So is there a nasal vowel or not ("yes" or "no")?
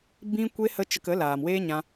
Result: yes